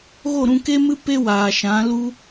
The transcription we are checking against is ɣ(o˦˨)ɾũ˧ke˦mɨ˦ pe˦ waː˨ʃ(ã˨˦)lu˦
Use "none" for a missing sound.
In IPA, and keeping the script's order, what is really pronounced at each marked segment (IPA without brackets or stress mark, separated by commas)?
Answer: o˦˨, ã˨˦